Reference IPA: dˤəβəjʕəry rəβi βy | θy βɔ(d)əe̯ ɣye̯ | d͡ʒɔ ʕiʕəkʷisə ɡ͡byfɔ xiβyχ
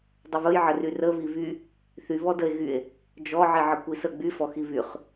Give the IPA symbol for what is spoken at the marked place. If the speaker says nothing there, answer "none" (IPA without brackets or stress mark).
d